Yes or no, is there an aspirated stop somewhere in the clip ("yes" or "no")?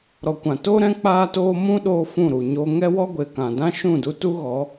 no